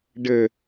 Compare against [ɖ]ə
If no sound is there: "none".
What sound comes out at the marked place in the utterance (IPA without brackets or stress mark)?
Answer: ɖ